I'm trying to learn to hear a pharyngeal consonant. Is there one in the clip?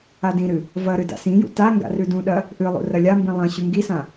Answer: no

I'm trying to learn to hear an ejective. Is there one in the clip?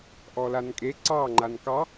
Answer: yes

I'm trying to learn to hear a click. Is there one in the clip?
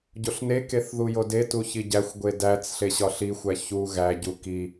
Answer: no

